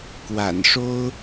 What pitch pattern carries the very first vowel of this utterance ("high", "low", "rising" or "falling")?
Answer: low